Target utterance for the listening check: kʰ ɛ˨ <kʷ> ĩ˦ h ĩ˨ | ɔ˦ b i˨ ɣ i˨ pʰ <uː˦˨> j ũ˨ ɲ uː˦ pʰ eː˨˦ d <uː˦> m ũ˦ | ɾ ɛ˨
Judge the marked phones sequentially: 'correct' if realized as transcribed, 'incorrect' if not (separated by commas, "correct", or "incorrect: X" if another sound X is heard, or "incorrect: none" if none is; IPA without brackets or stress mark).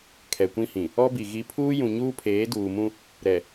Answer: correct, incorrect: uː˦, incorrect: uː˨